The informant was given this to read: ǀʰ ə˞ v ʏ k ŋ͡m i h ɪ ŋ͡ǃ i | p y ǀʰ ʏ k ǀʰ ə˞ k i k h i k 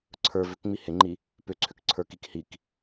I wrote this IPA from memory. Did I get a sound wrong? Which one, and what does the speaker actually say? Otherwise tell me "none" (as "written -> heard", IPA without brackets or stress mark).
y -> ʏ